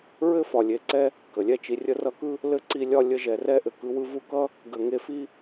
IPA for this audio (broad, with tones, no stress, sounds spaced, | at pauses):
ɹ ɘ˥ f ɒ˨ lʲ e˨ ǀ ɛ˦ | k ə˩ lʲ ɛ˦ t͡ʃ i˨ rʲ ə˦ r ʌ˦ k ɯ˥ | l ɘ˥ ǀ i˦ lʲ ɒ˦ lʲ ə˦ ʒ ɛ˨ r ɛ˥ ʔ ɘ˨ k ɯ˦ w ɯ˥ v u˦ k ʌ˥ | ɡ ə˨ ŋ e˦ f i˥